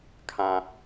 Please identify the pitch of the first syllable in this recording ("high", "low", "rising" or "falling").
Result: low